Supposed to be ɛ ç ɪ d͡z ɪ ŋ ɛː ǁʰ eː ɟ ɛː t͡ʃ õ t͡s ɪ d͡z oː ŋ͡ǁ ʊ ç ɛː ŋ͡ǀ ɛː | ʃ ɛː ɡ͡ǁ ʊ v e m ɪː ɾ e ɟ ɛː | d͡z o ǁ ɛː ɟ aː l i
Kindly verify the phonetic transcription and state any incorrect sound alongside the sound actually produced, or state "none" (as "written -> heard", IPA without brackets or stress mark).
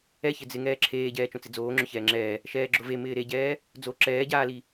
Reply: ŋ͡ǀ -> ŋ͡ǁ